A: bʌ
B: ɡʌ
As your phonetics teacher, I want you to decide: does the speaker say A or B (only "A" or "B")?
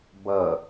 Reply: A